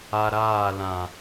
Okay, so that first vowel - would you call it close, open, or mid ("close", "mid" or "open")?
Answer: open